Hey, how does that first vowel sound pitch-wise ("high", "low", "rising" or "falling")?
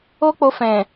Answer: high